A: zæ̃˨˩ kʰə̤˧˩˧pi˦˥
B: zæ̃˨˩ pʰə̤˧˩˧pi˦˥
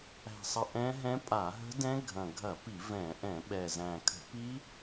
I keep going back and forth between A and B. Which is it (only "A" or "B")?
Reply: A